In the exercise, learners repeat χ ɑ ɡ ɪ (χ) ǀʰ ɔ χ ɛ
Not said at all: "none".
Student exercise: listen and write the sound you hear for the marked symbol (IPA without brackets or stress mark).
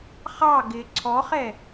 none